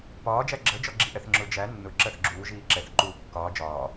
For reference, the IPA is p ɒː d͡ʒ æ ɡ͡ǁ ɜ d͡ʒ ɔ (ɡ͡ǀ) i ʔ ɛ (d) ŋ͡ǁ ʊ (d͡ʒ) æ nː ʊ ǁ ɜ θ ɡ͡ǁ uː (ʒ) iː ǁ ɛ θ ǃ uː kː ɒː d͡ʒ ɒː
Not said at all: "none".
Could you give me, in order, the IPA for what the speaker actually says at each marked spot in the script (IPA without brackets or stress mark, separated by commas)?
ɡ͡ǁ, θ, d͡ʒ, ʒ